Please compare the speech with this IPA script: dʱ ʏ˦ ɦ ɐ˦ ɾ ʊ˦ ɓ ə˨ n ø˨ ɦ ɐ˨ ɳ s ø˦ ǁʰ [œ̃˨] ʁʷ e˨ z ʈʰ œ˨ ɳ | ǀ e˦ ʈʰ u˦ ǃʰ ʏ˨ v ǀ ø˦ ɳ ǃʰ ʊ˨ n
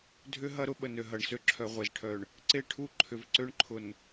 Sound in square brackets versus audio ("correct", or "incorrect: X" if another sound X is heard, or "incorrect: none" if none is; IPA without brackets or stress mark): incorrect: œ˨